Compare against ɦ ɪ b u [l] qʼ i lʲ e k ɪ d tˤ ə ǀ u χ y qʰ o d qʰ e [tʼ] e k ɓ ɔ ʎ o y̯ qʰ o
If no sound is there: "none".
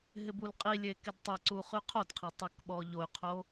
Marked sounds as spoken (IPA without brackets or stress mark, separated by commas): l, tˤ